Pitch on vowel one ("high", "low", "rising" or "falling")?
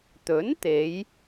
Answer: rising